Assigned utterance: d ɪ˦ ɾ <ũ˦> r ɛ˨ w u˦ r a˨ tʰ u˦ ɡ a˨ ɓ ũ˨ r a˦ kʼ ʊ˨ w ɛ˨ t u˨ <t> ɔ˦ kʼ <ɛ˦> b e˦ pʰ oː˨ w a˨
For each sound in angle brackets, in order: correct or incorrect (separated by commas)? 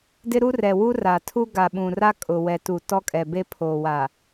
incorrect, correct, incorrect